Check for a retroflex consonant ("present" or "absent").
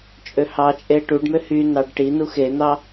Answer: present